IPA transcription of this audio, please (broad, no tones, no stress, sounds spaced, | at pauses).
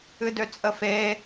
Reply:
ɨ d ø t͡sʼ ə f eː